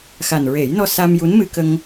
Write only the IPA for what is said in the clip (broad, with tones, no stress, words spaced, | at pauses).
xa˨˩nɹe˨˩˦jnɔ˧ sa˧mju˧˥n mɨ˧kə˧ŋ